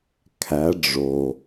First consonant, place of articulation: velar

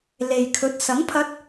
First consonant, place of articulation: alveolar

